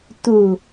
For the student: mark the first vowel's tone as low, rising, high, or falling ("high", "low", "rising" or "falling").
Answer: low